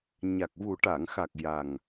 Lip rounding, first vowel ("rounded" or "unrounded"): unrounded